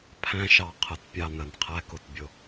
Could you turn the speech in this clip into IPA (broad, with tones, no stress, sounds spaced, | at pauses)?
pʰ æ̃˦ ʃ ɑ˨ qʰ ə˨ t pʲ ɑ˦˨ n ə˨ n qʰ æ˦ k ʊ˨ t bʲ ʊ˦